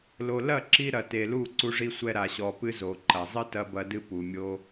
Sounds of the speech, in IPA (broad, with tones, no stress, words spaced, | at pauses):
lo˨lɐ˦˨ǁi˧ ɾɐ˨te˨lu˦˨ ǀu˧ʐi˧sʷɛ˧ ɾa˨ɕɔ˨ pɨ˦zo˨ ǃɐ˨ zˤɨ˦tɐ˧bɐ˧dɨ˧ pu˨mʲo˦